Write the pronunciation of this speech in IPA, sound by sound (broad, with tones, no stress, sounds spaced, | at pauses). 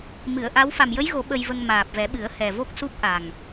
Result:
m ɨ˨˩˨ ə̯ ʔ a˧˥ w f a˨˩ m j ə˧˥ j ɣ o˨˩˦ ɓ ə˧ j v ə˧ ŋ m aː˨˩ p̚ v ɛ˨˩˦ ɓ ɨ˨˩˦ ə̯ h ɛ˨˩ v o˦˥ k̚ s u˦˥ p̚ ʔ a˨˩ ŋ